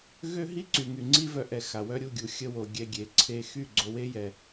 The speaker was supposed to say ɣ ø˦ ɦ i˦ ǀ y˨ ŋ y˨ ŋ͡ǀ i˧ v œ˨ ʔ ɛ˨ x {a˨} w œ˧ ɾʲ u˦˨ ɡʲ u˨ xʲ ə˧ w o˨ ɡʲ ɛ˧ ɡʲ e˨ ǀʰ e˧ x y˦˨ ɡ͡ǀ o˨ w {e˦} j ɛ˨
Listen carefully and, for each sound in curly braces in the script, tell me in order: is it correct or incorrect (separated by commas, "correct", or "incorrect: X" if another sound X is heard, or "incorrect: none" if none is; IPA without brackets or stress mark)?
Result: correct, incorrect: e˧